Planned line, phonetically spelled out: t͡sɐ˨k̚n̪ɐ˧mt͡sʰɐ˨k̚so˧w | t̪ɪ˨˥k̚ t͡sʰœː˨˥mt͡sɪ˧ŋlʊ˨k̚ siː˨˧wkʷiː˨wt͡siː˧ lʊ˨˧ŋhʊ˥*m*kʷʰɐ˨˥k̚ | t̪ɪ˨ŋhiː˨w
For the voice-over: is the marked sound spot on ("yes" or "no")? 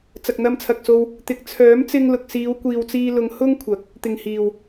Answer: no